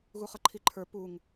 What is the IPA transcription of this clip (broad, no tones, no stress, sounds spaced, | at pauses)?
ɣ u χ ʌ ǃʰ i ǃʰ ə˞ p u ŋ